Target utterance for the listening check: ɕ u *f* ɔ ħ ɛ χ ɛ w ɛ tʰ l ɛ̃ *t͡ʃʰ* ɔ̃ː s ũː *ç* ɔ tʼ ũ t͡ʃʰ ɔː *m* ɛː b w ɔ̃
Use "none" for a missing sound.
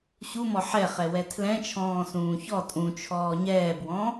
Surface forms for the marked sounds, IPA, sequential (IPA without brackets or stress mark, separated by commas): m, t͡ʃʰ, ç, ɲ